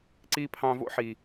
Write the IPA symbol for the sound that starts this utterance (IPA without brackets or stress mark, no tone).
ǀ